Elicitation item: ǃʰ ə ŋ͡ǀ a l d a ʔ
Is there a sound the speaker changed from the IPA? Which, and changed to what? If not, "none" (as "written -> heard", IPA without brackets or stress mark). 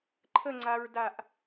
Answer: l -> ɹ